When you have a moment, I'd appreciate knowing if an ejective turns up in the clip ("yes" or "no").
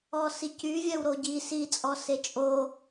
yes